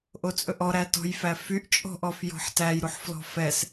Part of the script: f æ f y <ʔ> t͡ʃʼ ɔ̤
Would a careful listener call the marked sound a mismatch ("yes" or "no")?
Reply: no